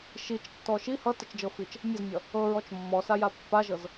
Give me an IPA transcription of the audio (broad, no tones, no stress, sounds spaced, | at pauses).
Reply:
ʃ i t͡ʃ tː ɔ ʃ i h ʌ t ʌ t͡ʃ d͡ʒ ɤ f i t͡ʃ | mʲ ʌ z mʲ ʌ | ɤ ɹ ɔ t͡ʃ mː ɔ s a j a pː a ʒ ɤ z